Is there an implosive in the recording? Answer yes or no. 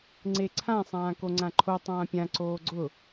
no